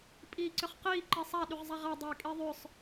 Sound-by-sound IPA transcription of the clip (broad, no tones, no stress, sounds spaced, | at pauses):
pʼ iː ǀ ʏ χ q iː ǃ i sˤ a ɗ y ʁ zˤ a ʁ a dˤ ʏː kʼ i ðˤ ʏ sˤ